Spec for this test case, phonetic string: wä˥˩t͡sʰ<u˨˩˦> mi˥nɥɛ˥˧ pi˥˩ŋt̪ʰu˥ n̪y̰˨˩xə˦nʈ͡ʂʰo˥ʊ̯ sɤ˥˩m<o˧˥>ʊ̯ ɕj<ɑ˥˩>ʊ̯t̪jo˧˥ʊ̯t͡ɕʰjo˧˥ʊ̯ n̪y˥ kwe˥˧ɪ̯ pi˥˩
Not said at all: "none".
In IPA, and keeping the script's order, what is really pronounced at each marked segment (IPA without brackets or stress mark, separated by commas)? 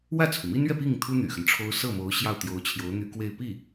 u˩, o˧˥, ɑ˥˩